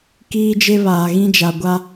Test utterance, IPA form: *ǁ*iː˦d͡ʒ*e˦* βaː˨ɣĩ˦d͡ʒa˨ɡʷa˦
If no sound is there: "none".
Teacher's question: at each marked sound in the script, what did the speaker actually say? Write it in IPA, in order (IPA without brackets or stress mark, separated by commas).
k, e˦